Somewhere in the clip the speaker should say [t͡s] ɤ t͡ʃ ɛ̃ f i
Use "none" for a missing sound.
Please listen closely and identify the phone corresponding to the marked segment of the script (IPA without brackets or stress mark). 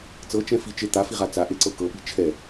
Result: t͡s